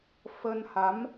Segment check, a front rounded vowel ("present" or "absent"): absent